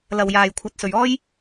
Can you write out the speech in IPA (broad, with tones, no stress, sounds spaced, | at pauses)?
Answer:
l ɐ˨ w j aː˨ j kʷʰ ɐ˨˥ t̚ s ɵ˨ ɥ ɔː˥ j